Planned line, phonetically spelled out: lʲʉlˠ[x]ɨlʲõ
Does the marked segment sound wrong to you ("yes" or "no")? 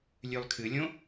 yes